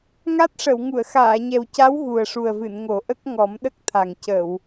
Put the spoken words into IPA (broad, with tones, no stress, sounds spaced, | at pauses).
ŋ a˦˥ t̚ ʂ ə˨˩˨ w ŋ u˨˩˨ ə̯ x aː˨˩˨ ɲ ɛ˨˩ w c a˧˥ w ɣ u˨˩ ə̯ ʂ u˨˩ ə̯ v ɨ˨˩˨ n ŋ o˨˩˦ ʔ ə˦˥ k̚ ŋ ɔ˨˩˦ m ɗ ə˦˥ k̚ t̪ʰ a˨˩ ŋ c ə˨˩˨ w